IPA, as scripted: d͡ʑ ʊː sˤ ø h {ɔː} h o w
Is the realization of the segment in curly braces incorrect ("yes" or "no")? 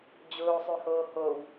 yes